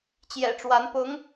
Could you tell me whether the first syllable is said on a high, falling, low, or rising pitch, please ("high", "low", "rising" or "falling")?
low